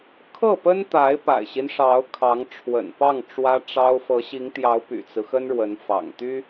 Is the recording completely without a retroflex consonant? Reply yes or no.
no